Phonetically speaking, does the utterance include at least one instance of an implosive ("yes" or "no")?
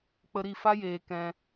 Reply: no